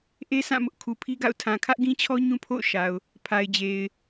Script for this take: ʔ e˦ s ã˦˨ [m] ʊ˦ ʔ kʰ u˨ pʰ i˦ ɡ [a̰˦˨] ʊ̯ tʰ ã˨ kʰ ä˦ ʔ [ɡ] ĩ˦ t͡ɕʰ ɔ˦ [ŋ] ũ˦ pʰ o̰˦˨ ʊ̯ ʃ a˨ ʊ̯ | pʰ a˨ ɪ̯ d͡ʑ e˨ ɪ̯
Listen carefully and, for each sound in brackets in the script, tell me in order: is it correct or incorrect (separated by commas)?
correct, correct, correct, incorrect